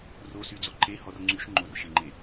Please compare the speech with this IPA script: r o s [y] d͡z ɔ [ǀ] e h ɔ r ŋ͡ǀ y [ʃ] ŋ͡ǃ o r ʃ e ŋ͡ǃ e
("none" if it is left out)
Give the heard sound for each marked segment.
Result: y, ǃ, ʃ

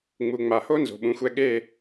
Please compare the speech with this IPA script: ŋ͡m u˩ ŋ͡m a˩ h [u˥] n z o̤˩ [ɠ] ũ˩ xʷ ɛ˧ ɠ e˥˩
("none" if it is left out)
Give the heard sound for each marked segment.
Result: o˥, ɓ

